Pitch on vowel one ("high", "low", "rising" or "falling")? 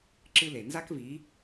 high